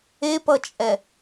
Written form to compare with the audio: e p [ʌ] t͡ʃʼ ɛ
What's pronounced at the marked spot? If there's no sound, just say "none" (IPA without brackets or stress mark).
ʌ